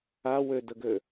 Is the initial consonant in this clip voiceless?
no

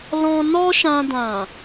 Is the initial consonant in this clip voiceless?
no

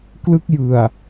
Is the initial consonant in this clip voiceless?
yes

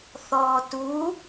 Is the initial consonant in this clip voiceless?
yes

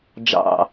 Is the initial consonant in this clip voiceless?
no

